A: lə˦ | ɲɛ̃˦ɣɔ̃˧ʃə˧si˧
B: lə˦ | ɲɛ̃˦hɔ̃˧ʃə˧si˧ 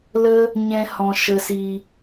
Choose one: B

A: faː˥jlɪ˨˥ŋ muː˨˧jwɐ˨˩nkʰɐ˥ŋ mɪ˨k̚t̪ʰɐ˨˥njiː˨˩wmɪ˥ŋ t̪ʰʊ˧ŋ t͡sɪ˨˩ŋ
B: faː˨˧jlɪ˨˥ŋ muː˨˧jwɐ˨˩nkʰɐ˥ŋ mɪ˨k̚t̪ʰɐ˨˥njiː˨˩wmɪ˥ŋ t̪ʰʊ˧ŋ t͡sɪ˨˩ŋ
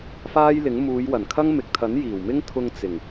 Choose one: A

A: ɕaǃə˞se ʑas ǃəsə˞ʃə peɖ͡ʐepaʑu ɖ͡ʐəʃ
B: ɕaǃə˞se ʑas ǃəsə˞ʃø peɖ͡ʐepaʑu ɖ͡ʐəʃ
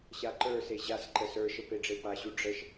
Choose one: A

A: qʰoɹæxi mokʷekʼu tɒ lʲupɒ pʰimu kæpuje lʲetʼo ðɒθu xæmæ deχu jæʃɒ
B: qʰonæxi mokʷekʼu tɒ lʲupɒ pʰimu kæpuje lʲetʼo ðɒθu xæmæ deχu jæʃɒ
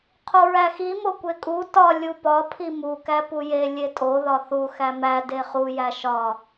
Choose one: A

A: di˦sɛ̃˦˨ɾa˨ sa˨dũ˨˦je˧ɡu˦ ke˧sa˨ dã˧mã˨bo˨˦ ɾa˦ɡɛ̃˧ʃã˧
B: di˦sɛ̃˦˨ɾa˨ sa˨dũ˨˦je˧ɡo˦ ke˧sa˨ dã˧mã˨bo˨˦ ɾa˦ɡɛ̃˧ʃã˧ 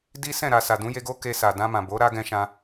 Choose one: B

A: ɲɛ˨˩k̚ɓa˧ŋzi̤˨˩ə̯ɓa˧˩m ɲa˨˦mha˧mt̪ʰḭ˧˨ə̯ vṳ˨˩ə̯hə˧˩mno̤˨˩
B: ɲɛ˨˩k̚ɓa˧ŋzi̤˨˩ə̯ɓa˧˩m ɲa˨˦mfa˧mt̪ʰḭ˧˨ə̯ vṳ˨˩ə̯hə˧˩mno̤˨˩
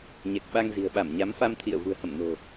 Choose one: B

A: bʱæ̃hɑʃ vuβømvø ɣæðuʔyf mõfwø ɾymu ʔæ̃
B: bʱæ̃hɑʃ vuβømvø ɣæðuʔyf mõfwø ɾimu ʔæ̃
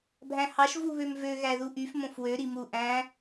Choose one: B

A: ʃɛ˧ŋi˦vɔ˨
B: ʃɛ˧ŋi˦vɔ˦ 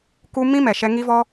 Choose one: B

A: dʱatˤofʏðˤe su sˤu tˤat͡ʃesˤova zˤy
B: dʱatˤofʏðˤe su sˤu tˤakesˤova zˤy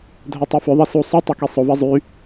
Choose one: B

